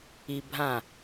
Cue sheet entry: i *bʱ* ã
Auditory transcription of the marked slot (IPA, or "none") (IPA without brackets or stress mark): bʱ